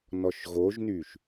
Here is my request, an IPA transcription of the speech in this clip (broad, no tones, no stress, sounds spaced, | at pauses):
n ɔ ʃ ɣ o ʒ n y ʃ